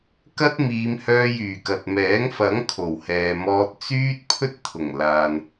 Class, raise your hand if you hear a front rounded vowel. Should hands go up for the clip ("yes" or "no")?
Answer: yes